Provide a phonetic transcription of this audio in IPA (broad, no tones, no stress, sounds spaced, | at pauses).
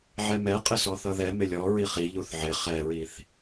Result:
ʕ ɛ m ɛ qʼ ɪ s ɔ θ ʌ ð ɛ m ɪ lʲ ɔ ɹ i χ i ʎ u θ ʕ ɪ χ ɛ ɹ i θ